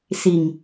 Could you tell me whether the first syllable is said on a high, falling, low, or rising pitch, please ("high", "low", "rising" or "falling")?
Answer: low